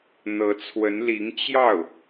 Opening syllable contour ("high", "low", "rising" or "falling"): rising